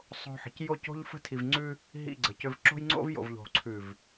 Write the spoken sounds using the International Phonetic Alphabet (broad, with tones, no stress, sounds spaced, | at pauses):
sˤ o̤˦ ħ ə̤˨ c j o˦˨ c o̤˦ ʎ f ə̤˦ tʰ i˨ v ŋ͡ǀ ʉ˦ | ɦ ḭ˦˨ ɡ͡ǀ ə˨ c ʏ˦ v ǁ o̤˦ j ŋ͡ǀ o̰˦ v j o̰˨ v ʎ o̤˨ ǀʰ ʉ˨ v